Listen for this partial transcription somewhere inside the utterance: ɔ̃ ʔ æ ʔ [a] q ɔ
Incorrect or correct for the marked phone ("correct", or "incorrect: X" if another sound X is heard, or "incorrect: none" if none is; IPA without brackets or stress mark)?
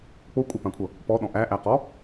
incorrect: æ